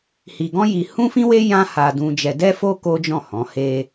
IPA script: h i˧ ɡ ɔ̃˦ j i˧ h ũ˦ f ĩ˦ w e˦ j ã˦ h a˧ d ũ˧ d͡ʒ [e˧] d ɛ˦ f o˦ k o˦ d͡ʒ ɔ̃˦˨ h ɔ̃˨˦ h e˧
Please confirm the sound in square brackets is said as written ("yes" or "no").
no